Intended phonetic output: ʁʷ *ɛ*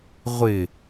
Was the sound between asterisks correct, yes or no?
no